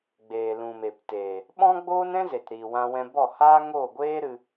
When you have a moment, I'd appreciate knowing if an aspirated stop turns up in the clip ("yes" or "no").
no